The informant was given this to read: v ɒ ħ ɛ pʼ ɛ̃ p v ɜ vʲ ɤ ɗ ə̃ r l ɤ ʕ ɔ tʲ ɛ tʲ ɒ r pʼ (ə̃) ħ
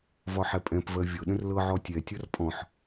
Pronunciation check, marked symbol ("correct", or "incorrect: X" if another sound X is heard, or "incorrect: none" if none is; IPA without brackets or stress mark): incorrect: ɔ̃